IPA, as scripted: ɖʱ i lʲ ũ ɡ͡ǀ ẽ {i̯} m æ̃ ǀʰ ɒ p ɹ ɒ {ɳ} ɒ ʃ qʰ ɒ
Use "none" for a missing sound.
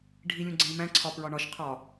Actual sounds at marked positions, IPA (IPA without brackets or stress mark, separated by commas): i̯, ɳ